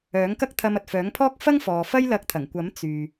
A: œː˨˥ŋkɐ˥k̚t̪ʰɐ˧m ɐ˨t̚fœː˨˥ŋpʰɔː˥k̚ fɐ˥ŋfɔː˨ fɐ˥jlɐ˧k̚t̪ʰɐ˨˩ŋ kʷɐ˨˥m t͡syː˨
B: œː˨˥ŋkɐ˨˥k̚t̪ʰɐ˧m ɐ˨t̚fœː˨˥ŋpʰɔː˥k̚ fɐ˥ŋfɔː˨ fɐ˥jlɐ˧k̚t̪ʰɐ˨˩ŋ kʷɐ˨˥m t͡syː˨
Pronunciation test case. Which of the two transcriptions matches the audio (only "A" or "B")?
A